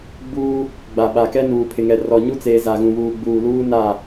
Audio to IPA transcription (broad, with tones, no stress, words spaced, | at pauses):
ɡ͡buː˦ | ɡ͡ba˨ɓa˨kɛ˦nuː˨ pʰɪ˨ŋɛ˨rɔ˨ɲu˦ t͡seː˨ za˨ɣũ˨βuː˨ ɡ͡buː˨luː˦na˦˨